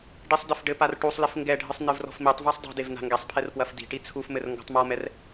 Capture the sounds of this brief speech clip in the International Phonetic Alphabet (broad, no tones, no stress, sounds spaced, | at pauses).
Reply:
ɖ i sˤ d ɘ f ɖ ɘ p a r ʈ u sˤ l i f ŋ ɡ ɛ ɖʱ ɨ sˤ n ɨ v r ɔ̤ f m i tˤ v a sˤ dˤ i̤ d e v n a̤ ŋ ɡ ɛ sˤ pʰ ɛ r p w ɐ f d i̤ ʈ i t͡sʰ u f m ɘ r ŋ ɡ ɔ̤ tˤ m ɔ m ɛ r